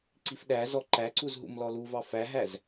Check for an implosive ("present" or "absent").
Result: present